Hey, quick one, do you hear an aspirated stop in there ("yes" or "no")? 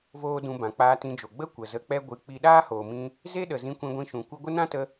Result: no